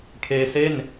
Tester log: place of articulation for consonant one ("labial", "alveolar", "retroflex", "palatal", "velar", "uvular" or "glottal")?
velar